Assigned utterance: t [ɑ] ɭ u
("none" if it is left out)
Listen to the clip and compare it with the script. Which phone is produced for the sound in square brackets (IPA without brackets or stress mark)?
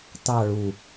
ɑ